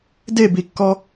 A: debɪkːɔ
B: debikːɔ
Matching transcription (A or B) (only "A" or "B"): B